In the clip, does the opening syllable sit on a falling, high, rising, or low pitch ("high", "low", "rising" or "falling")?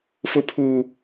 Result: high